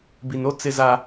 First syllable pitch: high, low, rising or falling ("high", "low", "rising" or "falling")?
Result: low